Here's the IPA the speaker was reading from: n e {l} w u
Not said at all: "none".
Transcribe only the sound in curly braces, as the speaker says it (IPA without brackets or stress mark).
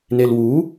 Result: l